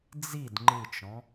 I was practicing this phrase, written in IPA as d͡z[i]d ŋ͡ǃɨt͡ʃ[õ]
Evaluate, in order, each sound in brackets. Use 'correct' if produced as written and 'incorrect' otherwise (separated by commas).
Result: correct, incorrect